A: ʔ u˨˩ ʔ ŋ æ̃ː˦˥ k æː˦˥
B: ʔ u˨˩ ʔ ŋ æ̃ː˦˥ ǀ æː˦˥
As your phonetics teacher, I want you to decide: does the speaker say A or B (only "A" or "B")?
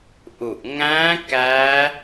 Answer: A